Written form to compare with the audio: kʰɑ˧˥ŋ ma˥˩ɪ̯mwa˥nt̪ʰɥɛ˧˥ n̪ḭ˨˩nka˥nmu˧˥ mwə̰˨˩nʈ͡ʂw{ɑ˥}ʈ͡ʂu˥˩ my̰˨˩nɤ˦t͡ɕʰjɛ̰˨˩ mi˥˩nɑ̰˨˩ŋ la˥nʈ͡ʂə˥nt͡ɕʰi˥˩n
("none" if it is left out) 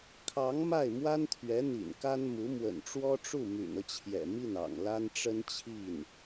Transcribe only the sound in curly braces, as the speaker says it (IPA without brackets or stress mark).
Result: ɔ˥